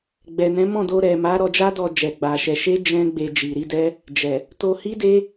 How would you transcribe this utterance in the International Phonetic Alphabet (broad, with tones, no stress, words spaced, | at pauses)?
ɡ͡bɛ˨nɛ̃˨˦ mɔ̃˦˨do˧ ɾɛ˨ma˨˦ ɾɔ˧d͡ʒa˦dɔ˧d͡ʒɛ˨ ɡ͡ba˧ʃɛ˧ ʃe˦ d͡ʒɛ̃˦ɡ͡be˧ d͡ʒi˨ɾi˨˦dɛ˦ | d͡ʒɛ˨ | to˧hi˦de˦